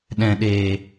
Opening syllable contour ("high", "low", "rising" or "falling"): low